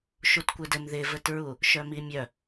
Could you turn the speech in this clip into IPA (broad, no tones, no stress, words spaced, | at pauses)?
ʃutkʷɘdɘm ðɪvɘtɹu | ʃœmimʲœ